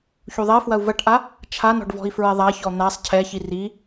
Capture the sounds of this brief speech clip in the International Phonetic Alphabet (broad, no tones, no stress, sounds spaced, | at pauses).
ç u ðˤ ɛ f w ɐ u̯ v ɐ ʈ ʔ a | t͡ʃʰ a n ɔ̤ ɖ v ɔ̤ i̯ f ɹ ɛ ðˤ a ç ɔ n̪ a sˤ cʰ ɛ ç i r i